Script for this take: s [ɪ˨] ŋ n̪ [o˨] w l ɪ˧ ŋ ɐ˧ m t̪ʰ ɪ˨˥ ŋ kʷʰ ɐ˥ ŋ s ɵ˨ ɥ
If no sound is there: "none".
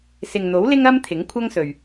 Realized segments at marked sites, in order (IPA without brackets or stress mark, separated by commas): ɪ˨, o˨˥